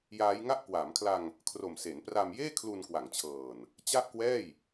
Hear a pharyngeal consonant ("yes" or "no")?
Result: no